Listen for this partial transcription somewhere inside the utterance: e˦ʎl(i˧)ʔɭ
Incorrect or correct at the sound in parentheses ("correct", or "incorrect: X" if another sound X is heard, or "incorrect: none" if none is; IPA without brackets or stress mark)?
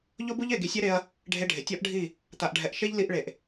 correct